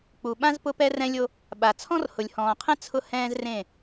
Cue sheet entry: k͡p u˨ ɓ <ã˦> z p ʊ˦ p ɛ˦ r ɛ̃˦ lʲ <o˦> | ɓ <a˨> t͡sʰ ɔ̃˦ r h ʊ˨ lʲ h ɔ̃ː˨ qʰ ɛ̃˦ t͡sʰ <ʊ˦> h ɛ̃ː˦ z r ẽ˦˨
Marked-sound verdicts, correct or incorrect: correct, correct, correct, correct

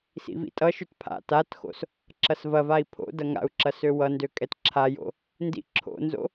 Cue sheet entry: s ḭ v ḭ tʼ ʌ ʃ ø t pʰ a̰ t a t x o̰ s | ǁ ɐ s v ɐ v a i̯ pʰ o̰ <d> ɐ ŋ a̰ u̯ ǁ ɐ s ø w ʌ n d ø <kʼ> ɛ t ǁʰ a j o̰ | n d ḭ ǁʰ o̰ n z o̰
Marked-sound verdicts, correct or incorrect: correct, correct

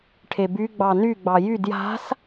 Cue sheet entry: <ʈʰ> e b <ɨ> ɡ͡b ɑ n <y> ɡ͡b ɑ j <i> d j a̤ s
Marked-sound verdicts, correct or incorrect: correct, incorrect: y, correct, incorrect: y

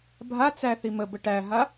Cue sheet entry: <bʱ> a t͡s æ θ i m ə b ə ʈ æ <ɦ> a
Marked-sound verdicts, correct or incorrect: correct, correct

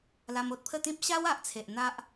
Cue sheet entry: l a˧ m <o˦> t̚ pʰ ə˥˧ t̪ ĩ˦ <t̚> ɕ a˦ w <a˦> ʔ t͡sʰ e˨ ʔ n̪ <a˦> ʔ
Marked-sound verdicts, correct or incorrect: correct, incorrect: p̚, incorrect: a˨, correct

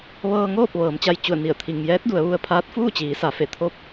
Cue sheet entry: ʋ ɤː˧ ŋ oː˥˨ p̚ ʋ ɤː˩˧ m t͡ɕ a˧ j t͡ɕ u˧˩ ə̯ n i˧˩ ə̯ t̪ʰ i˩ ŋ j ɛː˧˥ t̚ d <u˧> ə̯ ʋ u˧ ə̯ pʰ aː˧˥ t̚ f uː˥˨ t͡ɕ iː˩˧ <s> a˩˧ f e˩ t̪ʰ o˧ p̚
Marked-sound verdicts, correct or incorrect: incorrect: u˩˧, correct

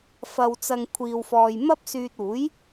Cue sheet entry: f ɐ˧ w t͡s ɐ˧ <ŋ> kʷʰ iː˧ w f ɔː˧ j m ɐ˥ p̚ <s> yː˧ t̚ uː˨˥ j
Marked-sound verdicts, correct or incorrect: correct, correct

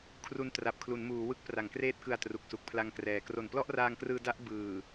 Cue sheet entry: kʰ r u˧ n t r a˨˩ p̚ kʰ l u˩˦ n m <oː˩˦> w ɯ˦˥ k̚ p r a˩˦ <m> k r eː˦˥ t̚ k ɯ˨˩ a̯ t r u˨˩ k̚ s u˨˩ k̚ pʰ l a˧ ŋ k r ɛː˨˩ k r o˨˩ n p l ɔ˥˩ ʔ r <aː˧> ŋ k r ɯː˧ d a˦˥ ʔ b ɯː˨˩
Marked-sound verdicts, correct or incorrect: incorrect: uː˩˦, incorrect: ŋ, correct

